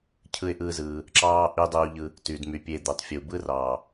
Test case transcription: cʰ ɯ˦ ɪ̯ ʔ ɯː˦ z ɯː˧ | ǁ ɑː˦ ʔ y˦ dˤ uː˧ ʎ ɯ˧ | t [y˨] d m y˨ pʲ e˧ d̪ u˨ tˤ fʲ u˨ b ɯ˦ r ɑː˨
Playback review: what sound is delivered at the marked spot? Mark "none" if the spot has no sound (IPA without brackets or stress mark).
y˨